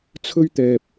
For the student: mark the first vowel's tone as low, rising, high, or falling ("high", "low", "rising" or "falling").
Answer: high